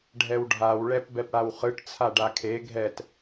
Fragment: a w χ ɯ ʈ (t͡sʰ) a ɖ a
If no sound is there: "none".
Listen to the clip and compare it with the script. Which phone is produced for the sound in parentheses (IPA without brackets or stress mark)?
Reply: t͡sʰ